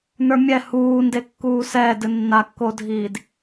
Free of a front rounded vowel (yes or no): yes